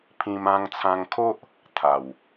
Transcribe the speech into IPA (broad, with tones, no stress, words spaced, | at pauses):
pʰĩ˧m ã˧ŋt͡sʰã˧ŋkʰo˦ʔ | t̪ʰa˨˩w